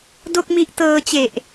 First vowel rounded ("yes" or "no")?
yes